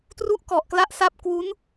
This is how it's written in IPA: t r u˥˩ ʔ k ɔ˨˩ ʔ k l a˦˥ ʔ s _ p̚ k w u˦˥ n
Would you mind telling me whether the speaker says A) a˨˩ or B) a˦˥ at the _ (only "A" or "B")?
B